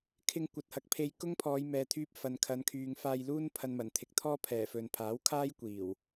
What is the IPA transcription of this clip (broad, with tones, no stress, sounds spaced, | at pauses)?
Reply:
kʰ ɪ˧ ŋ kʷ ɐ˨ t̚ h ɐ˨ k̚ pʰ e˧ j k ʊ˥ ŋ pʰ ɔː˨˧ j m ɛː˨ t̪ʰ yː˧ p̚ f ɐ˨ n kʰ ɐ˨˧ n kʰ yː˨ ŋ f aː˧ j l uː˥ n pʰ ɐ˧ n m ɐ˨˩ n t̪ʰ ɪ˨ k̚ t̪ʰ ɔː˥ pʰ ɛː˨˩ f ɵ˨ n pʰ aː˨˥ w kʰ aː˥ j kʷ iː˨˩ w